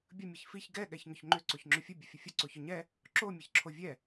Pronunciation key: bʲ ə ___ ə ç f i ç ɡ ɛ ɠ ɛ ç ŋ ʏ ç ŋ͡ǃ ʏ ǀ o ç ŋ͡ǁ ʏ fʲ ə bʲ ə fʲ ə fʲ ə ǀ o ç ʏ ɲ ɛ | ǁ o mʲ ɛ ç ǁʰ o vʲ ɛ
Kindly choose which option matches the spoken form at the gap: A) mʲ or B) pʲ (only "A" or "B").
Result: A